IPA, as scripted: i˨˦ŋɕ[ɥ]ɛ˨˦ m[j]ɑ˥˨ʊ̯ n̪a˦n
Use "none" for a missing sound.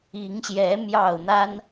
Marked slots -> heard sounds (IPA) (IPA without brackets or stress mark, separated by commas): j, j